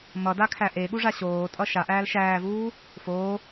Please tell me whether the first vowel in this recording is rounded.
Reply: no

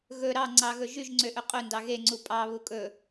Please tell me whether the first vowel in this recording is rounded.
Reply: yes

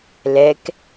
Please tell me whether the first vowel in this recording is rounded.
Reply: no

